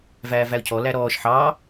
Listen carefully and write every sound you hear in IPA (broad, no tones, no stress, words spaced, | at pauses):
væːvæʊ̯cʰɔlæ ɾɔːʃ ħɑ